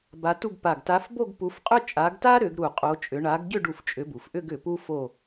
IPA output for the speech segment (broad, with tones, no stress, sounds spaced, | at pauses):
b a˨˦ t u˥˧ ɡ p a˧˩ ɡ t a˨˦ f b o˥˧ ɡ p u˨˦ f qʼ ʏ˥˧ t͡ʃʼ a˨˦ ɡ t a˥ ɾ ʏ˨˦ ɡ ɾ u˧˩ qʼ o˨˦ t͡ʃʼ ʏ˨˦ ɳ a˨˦ ɡ ɟ ʏ˥˧ ɖ u˧˩ f t͡ʃʼ ʏ˨˦ b u˩ f ʔ ʏ˥˧ ɡ ʏ˧˩ p u˥ f o˥˧